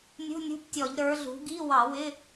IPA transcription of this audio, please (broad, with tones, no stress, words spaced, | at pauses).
nʲṳ˧˥˧nʲṳ˧˥˧ptʲɔ˧˩˧ʎ ɾə˞˩˧ɮṳ˩˧ɡi˧˥˧ wɑ˧˩˧wɪ˧˥˧